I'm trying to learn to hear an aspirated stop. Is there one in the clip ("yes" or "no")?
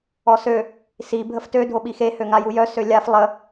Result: no